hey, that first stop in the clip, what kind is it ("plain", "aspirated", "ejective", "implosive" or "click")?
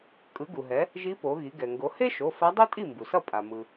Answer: ejective